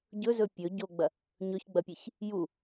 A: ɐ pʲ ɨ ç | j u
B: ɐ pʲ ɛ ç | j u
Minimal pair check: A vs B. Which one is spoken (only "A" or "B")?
A